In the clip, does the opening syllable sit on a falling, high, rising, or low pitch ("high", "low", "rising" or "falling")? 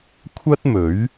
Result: high